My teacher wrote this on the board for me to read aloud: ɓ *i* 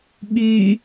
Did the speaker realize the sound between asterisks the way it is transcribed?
no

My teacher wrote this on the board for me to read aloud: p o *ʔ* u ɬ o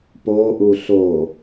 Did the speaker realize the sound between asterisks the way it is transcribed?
yes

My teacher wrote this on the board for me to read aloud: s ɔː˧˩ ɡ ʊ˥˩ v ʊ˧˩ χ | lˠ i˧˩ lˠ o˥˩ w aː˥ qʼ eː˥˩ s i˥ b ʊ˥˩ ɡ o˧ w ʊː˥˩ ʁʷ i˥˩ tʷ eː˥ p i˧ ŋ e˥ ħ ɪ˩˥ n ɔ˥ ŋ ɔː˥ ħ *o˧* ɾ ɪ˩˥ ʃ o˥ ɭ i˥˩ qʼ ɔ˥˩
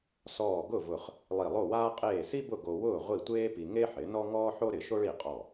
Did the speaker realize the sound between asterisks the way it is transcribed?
no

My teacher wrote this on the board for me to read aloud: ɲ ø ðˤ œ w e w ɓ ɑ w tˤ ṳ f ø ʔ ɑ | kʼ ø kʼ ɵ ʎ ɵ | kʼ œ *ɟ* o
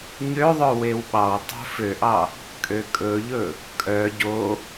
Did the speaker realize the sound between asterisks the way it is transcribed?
yes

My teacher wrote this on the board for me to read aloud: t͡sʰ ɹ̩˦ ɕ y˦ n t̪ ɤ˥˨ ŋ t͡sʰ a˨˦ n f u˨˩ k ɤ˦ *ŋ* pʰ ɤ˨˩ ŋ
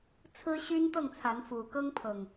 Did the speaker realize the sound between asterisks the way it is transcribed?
yes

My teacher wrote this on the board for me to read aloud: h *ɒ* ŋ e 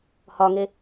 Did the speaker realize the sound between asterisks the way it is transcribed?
yes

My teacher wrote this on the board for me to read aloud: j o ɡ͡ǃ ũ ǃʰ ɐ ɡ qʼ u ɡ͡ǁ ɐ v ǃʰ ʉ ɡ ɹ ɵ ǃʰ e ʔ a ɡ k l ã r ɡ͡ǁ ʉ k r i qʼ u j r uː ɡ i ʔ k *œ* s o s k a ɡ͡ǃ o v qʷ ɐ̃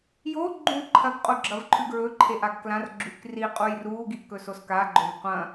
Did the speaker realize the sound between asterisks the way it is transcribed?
no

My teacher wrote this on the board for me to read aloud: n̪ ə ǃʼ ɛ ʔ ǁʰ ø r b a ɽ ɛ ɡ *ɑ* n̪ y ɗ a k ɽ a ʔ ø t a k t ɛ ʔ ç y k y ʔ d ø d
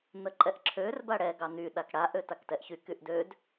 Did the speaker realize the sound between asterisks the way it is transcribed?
yes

